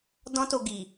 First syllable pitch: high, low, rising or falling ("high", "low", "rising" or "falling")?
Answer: high